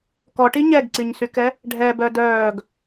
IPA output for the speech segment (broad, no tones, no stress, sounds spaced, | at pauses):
k ɔ ʈ i ɲ ɛ ɡ ǀ i ɲ s y k ɛ | ɖʱ ɛ b œ d œː ɡ